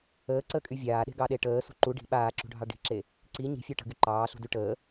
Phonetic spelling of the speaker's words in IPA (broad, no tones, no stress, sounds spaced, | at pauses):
əː ǀ əː kʼ y vʲ aː ɗ e̤ ɡ ɑ ɗ e ʈ əː s ṳ ǃ u ɖ i̤ ɓ aː ǁ ṳ ɖʱ ɑ ɖ i̤ ǁ e | ǀ i ɲ i̤ fʲ œ ʈ ə̤ ɡ y ǃ ɑː ɬ ṳ d y ʈ əː